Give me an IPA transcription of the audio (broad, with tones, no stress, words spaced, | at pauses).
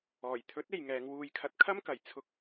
ɔː˨˩jt̪ʰɵ˨˥t̚ e˨jŋɛː˨˧ŋwuː˧j kʰɐ˧t̚kʰɐ˥mkɐ˨˩j t͡sʰʊ˧k̚